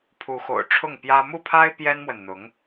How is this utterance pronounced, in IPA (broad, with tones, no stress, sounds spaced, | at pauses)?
pʰ u˧˥ x o̰˨˩ ʊ̯ ʈ͡ʂʰ ʊ˥˩ ŋ p j ä˥ m u˥˩ pʰ a˥ ɪ̯ p j ɛ˥ n m w ə˨ n n̪ ʊ˧˥ ŋ